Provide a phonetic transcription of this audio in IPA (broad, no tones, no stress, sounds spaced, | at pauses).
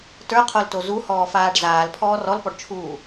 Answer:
t ə˞ qʰ o l t o z u h ɔː f aː ɖ z aː l pʰ ɔː r ɔ l p ɔ ɖ t͡ʃʰ uː